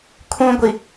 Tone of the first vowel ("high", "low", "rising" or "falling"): high